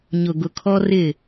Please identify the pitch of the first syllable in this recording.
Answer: low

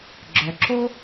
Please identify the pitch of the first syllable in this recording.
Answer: low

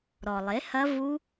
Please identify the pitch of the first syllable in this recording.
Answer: low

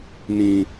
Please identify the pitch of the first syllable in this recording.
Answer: high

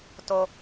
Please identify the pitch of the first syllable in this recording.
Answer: high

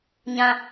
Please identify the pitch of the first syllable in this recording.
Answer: high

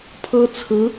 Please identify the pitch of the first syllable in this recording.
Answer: high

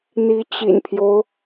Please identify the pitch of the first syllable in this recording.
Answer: rising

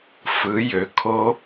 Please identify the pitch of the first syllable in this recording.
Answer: rising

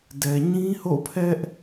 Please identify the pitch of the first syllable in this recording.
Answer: low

